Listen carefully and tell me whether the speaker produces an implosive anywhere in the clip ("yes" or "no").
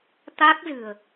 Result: no